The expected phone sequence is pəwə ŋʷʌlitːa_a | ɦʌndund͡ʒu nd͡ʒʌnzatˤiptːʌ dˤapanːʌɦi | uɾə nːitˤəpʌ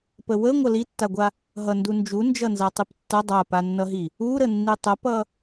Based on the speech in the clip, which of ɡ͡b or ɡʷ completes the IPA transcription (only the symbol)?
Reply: ɡʷ